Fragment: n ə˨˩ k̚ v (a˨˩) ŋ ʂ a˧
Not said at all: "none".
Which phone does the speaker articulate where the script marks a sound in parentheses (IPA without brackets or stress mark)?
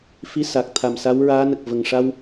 ə˨˩